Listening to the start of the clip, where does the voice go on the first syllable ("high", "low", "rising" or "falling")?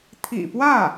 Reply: low